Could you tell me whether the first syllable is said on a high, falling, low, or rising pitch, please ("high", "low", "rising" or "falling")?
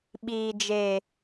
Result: low